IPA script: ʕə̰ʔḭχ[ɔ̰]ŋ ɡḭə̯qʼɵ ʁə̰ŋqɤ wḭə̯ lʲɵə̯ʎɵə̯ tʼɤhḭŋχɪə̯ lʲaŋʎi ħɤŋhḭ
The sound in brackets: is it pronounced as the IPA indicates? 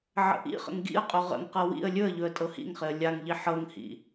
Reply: no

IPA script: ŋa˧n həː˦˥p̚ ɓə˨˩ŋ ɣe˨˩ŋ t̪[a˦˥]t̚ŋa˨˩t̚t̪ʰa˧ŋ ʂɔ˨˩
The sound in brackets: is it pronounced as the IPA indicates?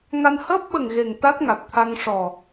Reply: yes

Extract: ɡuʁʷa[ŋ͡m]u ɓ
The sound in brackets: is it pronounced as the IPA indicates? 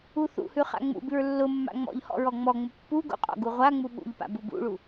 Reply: yes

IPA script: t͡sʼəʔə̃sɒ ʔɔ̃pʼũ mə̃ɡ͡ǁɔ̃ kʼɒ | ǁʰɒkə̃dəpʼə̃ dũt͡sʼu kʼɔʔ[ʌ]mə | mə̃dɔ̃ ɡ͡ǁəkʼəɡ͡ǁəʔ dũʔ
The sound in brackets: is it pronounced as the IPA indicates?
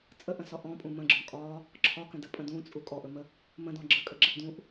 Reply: no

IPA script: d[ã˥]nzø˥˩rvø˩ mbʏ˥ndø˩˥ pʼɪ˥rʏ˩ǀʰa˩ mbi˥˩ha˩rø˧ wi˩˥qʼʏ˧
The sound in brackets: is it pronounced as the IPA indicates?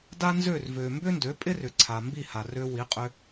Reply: no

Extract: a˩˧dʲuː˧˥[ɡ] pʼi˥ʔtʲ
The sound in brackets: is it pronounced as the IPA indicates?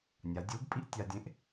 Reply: yes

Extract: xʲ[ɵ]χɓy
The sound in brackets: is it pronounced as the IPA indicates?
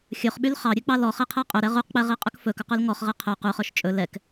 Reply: yes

